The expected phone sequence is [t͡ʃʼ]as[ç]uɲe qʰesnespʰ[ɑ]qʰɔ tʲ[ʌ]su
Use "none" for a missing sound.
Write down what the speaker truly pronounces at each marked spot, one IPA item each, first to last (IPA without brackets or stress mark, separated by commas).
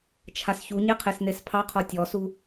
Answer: t͡ʃʰ, ç, ɑ, ɔ